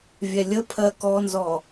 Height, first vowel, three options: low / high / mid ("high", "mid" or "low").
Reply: mid